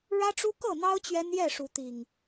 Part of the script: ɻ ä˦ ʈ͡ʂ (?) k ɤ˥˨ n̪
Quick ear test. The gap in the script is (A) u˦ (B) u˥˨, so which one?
A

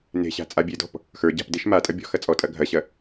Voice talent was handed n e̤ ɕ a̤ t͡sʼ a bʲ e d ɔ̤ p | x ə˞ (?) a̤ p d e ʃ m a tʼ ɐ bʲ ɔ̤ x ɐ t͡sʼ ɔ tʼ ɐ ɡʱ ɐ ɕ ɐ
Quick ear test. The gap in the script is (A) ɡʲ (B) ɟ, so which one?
B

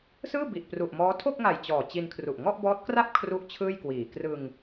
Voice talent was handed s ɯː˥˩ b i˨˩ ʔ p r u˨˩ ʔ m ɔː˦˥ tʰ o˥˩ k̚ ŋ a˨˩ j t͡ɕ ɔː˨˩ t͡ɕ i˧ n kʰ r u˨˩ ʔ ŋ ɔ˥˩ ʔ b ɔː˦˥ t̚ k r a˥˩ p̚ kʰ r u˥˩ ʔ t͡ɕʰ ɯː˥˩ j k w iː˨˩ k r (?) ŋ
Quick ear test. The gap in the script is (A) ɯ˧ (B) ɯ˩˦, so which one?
A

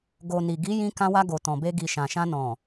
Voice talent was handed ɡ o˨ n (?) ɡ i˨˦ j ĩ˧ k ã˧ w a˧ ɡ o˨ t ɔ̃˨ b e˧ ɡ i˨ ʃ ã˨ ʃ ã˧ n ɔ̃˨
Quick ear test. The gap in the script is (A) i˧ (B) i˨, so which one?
B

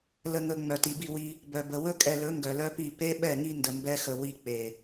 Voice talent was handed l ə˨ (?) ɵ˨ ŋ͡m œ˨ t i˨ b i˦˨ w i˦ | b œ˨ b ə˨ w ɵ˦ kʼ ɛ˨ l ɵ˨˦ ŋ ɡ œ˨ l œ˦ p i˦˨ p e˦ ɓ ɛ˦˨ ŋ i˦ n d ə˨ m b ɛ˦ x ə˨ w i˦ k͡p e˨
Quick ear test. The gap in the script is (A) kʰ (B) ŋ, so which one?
B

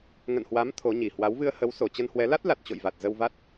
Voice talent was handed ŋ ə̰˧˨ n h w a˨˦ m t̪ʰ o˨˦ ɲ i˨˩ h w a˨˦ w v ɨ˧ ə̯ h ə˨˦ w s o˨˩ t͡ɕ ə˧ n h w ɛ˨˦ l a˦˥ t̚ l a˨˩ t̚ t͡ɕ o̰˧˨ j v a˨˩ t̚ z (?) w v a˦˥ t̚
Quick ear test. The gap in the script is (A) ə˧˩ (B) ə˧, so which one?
B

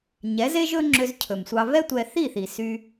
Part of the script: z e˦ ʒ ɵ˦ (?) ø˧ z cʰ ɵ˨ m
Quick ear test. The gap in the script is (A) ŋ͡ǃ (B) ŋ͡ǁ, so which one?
B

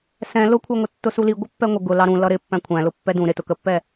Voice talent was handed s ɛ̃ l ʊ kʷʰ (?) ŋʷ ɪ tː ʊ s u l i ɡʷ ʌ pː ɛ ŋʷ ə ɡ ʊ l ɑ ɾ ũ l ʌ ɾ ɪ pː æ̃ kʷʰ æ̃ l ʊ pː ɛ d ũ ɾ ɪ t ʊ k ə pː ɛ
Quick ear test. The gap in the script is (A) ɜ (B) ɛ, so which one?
A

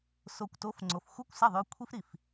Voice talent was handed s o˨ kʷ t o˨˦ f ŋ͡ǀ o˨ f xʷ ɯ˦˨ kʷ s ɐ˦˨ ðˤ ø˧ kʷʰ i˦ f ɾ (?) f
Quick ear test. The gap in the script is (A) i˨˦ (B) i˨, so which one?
B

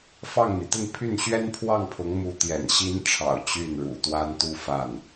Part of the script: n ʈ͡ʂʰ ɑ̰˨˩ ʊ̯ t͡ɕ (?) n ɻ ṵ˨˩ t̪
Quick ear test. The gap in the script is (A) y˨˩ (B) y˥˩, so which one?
B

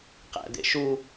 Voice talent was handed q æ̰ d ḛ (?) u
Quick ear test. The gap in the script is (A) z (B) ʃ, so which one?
B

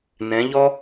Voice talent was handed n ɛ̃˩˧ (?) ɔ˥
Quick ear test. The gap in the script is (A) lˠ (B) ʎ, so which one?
B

